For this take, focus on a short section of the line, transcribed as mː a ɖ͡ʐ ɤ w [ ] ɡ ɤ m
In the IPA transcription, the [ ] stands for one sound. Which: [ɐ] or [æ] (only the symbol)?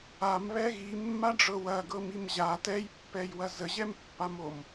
ɐ